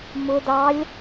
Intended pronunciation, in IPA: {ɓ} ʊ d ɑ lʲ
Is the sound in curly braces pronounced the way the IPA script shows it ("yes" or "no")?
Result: no